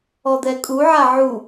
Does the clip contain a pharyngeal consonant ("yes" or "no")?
yes